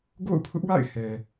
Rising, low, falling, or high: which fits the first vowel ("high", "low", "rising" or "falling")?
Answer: falling